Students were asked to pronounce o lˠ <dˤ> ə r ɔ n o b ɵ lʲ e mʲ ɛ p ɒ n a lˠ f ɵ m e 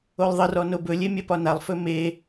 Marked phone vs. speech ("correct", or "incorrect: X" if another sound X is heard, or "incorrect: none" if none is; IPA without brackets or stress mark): incorrect: ðˤ